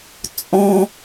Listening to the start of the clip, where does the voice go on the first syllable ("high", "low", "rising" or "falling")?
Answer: high